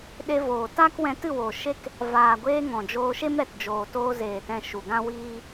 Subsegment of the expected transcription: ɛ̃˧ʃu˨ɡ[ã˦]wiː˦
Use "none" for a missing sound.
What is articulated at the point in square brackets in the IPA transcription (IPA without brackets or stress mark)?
ã˦